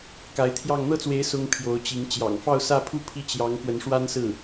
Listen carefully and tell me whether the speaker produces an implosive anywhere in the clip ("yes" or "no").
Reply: no